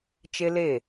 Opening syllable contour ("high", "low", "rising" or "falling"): high